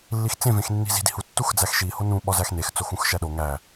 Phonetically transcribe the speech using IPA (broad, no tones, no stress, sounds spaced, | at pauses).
lː i x t͡s ẽ v ẽ x nː i̤ z i̤ d i̤ h u tː u x d͡z æ x ʃ i h o n ũ ɓ ɒ z æ x n e x t͡s o x ũ x ʃ æ ɗ o ŋ æ